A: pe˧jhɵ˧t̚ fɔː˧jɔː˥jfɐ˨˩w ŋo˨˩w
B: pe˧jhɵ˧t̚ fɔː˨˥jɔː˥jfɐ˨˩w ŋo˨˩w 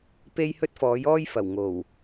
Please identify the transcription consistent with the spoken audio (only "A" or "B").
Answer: B